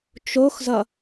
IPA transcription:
t͡ʃ o x z ʌ

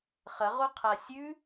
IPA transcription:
χ ɐ ʁ o qʰ a sʲ ʉ

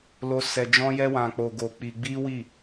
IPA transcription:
l o˦ s ɛ˧ d͡ʒ ɔ̃˦ j ɛ˦ w ã˧ k͡p o˧ ɡ o˧ k͡p i˧ ɡ͡b i˦ w i˦˨

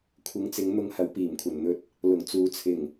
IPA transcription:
kʷʰ ɪ˨˥ ŋ t͡s ɪ˨˧ ŋ n̪ ʊ˧ ŋ h ɐ˨˧ w p iː˨˩ m kʷʰ ɐ˨˩ n n̪ ɵ˧ t̚ | l ʊ˨˩ ŋ t͡s uː˨ t͡sʰ ɪ˨˩ ŋ

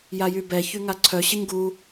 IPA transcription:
j a j y b ɛ ç y ŋ a ǀʰ œ ɕ ə ɲ ɡ u

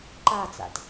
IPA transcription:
ǃ a t͡s a̰ t

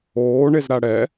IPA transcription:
oː ɳ e z ɾ a ɽ ɛ

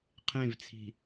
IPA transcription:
qʰ ẽ v t͡sʰ i̤

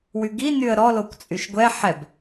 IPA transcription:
w y ɡ i n y ə̯ ɾ ɔ l o kʷ t͡sʼ y ʃ ɡʷ ɛ ħ ɛ b

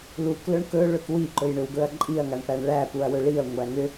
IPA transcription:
l u k l ɵ ɳ k ɵ ɭ ɵ k w i ǃ ɵ j ɳ ʏ w ɡ ɵ ɐ̯ ǃʼ i ɐ̯ ŋ a ɳ p æ ɳ ɭ æ p u ɐ̯ w ɵ ɭ i ɐ̯ ŋʷ æ ŋ ʏ

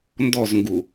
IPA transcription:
n d ɔ z ŋ ɡ u

